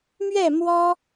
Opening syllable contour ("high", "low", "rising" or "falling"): falling